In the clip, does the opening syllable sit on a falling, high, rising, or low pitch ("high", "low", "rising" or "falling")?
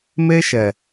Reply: high